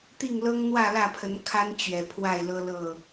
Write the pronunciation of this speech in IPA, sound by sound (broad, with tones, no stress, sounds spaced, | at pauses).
t̪ i˥˨ ŋ l ɤ˦ ŋ n̪ w ä˥˨ l ä˥˨ pʰ ə˨˦ n kʰ a˦ n t͡ɕ ɥ ɛ˨˩ pʰ w a˥˨ ɪ̯ l ɤ˦ l ɤ˥˨